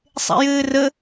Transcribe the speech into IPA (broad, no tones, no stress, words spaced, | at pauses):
sˤḛjɘːrə